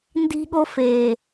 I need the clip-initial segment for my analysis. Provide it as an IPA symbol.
n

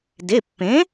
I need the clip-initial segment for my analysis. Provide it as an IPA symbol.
d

